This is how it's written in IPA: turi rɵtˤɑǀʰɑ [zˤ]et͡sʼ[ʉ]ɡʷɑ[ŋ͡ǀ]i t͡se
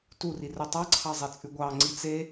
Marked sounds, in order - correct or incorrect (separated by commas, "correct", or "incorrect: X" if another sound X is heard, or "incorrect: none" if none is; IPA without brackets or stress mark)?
correct, correct, correct